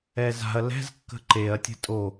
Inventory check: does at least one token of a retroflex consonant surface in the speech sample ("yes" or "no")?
no